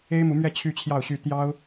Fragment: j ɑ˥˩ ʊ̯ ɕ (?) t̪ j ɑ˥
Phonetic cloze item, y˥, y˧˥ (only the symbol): y˥